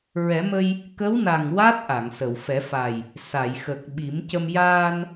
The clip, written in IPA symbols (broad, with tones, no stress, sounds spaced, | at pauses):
ɹ ɛ˨˩˦ m ə˧ j | k ə˧˥ w n a˨˩ ŋ w a˦˥ t̚ ʔ a˨˩˨ ŋ s ə˨˩˨ w f ɛ˨˩˦ f a˨˩ j | s a˨˩˨ j x ə˨˩ k̚ ɓ i˨˩˦ m c ə˧ m j aː˧ n